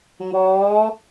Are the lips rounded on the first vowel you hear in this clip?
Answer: yes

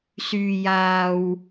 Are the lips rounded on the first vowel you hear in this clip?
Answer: yes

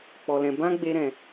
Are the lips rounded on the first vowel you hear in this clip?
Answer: yes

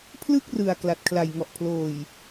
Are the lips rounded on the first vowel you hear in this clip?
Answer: no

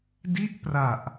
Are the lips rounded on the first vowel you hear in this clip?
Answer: no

